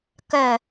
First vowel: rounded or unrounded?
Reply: rounded